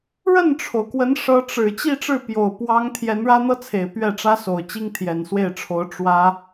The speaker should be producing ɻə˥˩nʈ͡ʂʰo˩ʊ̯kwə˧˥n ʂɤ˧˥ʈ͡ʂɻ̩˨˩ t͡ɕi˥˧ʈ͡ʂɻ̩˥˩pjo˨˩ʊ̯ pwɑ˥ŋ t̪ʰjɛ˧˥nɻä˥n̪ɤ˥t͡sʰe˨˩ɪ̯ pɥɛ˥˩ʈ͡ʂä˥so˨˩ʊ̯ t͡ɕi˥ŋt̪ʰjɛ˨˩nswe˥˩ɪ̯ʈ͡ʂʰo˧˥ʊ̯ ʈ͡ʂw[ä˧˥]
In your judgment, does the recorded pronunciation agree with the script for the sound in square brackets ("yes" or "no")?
no